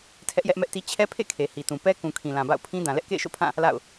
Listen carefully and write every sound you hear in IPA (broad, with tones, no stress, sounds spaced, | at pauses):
tʰ ɛ˦ ʔ j ɛ˦ ʔ m ɛ˦ ʔ t i˦ t͡ɕʰ ɛ˦ pʰ ḛ˦˨ kʰ e˨ h i˨ t ũ˨ p ɛ˦ k ũ˨ kʰ ĩ˨ l ã˨ b a̰˦˨ ʊ̯ pʰ ĩ˦ d ã˨ l ɛ˦ ʔ k ḛ˦˨ ɪ̯ ʃ o̰˦˨ pʰ ã˦˨ | l a̰˦˨ ʊ̯